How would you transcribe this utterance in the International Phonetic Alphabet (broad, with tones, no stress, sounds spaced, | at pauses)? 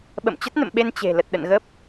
ɓ ə̰˧˨ m t͡ɕ ə˦˥ t̚ n ə̰˧˨ m ɓ e˧ n t͡ɕ e̤˨˩ l ə˨˩ t̚ ɗ ə̰˧˨ n ɣ ə˦˥ p̚